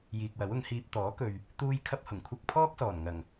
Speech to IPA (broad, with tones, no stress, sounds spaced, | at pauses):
j iː˨ k̚ w ɐ˨˥ w ʊ˨˧ ŋ h iː˧ p̚ t̪ ɔː˨˥ k ɵ˨ ɥ | t̪ uː˥ j kʰ ɐ˥ p̚ h ʊ˨˩ ŋ kʷʰ ɐ˥ k̚ pʰ ɔː˥ k̚ s ɔː˨˩ n ŋ ɐ˨˩ ŋ